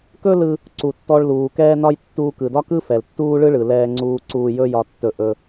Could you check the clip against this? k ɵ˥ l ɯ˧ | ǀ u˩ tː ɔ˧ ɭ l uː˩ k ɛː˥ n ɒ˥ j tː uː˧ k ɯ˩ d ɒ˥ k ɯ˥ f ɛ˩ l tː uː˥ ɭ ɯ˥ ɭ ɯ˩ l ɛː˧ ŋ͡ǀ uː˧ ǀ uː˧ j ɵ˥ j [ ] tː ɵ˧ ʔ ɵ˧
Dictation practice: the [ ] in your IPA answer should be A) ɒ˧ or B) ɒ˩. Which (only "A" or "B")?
A